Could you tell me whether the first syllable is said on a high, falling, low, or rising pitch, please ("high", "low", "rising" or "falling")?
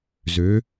rising